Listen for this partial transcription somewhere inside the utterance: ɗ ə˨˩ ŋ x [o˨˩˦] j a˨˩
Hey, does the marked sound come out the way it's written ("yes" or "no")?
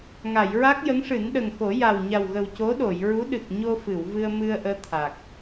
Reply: yes